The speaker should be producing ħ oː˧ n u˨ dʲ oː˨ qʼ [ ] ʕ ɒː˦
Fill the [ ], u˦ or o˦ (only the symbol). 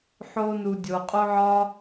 o˦